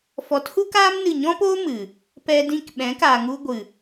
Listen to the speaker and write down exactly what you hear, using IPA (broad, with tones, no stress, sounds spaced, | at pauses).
f ɔ˨˦ t h u˦ k aː˦ m n ɨ˦˨ ɲ ɔ̃˦ p oː˦ m ɨ˨ | p ɛ˧ d ĩ˧ k ɓ ɛ̃˨˦ k aː˨ ŋ u˧ ɡʷ ɨ˨